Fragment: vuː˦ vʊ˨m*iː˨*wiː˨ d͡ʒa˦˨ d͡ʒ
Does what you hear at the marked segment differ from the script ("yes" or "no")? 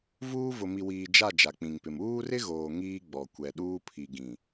yes